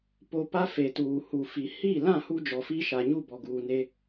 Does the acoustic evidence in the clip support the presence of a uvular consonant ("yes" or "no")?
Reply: no